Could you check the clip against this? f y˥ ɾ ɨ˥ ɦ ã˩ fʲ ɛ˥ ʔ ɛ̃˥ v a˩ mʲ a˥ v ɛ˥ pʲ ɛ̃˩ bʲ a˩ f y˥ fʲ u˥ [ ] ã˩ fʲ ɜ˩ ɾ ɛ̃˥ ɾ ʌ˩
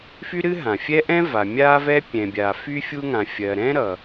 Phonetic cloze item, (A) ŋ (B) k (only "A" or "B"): A